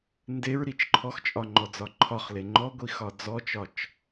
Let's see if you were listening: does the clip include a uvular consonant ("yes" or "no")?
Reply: yes